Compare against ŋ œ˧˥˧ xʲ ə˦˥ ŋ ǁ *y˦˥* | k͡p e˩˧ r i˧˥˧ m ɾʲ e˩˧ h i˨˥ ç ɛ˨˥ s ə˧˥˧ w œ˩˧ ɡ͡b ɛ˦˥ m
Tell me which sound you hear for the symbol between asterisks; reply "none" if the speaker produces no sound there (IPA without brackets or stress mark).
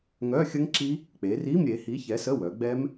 i˦˥